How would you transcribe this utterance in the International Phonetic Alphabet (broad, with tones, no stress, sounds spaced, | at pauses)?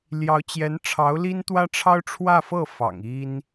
l j ɑ˧˥ ʊ̯ t͡ɕ j ɛ˧˥ n ʈ͡ʂʰ ɑ˧˥ ʊ̯ l i˥ n t̪ w ä˥ ʈ͡ʂʰ ɑ˥ ʊ̯ ʈ͡ʂʰ w ä˥˧ f ɤ˥˩ f ɑ̰˨˩ ŋ i˥ n